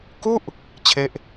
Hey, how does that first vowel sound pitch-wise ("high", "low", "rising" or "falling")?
falling